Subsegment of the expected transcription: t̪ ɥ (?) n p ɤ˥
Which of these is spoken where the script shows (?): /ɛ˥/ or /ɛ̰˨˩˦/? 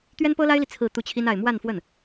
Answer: ɛ˥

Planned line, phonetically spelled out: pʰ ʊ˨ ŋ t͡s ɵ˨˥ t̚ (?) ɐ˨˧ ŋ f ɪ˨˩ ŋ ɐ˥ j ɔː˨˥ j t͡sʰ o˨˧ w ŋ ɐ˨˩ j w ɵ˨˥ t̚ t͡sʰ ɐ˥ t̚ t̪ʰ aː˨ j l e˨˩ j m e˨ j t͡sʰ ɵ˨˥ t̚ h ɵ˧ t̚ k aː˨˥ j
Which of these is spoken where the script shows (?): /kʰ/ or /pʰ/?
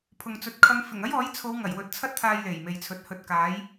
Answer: kʰ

